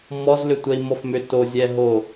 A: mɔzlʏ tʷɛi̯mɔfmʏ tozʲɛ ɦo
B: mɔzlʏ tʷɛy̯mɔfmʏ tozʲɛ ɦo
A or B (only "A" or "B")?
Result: A